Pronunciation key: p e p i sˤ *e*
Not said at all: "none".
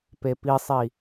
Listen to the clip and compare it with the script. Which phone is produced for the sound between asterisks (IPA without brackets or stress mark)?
i